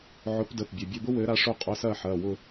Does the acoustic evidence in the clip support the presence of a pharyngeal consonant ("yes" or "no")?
yes